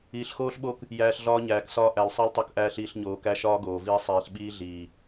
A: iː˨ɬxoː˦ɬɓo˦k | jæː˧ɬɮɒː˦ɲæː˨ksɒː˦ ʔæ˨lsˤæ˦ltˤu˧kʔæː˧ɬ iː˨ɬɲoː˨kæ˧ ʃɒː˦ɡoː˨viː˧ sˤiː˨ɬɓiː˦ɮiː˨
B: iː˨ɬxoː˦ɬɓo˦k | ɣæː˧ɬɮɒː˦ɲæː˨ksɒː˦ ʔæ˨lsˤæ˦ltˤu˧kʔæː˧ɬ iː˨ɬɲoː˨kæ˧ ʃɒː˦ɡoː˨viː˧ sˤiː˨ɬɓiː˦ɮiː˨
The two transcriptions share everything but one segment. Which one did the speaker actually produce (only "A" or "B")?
A